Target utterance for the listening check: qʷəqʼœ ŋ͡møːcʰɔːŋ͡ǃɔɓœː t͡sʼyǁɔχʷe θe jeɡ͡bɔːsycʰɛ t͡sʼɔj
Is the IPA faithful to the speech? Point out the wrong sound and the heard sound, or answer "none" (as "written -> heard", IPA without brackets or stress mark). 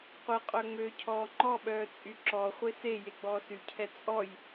θ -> s